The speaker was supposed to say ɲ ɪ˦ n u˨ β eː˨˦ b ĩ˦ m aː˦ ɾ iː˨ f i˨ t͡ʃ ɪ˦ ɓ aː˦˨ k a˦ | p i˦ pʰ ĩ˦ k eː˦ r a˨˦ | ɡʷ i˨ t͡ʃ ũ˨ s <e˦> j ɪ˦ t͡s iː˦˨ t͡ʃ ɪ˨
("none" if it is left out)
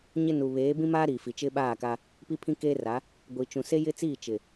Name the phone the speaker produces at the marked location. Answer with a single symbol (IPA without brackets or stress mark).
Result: e˦